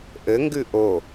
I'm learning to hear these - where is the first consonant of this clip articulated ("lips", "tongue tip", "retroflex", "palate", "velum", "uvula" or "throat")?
throat